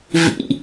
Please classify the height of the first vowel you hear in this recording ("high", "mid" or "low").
high